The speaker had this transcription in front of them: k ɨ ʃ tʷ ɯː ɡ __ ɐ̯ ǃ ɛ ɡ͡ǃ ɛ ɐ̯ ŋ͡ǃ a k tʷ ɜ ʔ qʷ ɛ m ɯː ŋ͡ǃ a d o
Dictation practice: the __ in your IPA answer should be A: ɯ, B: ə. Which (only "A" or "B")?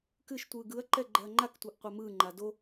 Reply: A